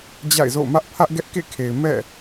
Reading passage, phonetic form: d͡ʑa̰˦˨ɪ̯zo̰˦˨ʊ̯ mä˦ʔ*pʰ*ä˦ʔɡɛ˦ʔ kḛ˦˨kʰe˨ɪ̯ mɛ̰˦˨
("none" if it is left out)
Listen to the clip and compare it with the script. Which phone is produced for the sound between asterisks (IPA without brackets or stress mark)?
pʰ